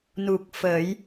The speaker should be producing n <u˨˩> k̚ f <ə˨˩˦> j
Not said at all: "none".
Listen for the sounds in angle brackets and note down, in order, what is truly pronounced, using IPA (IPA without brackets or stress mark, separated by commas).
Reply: u˨˩, əː˨˩˦